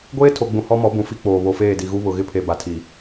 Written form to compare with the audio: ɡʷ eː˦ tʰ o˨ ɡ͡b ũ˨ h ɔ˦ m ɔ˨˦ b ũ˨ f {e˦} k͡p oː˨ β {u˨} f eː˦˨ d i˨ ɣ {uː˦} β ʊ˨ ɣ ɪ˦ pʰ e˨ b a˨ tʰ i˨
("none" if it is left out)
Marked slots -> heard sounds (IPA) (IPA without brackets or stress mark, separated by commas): i˦, o˨, u˦